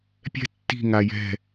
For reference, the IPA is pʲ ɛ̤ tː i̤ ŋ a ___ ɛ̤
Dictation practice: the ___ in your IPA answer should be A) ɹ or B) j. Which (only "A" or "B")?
B